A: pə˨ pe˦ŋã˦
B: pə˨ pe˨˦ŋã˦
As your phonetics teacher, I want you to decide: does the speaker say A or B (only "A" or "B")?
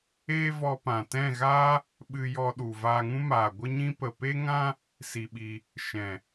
A